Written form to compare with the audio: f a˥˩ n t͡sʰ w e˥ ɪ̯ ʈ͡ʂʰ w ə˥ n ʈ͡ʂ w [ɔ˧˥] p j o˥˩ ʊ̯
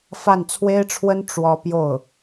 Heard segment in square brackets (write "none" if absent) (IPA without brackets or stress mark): ɔ˥